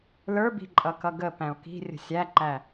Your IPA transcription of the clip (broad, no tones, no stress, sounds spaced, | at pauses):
l ə˞ b i̤ ǃʼ ʌ k ʌ ɡ ə p æ̃ o̯ k i̤ rʲ ə̤ sʲ æ ǃ æ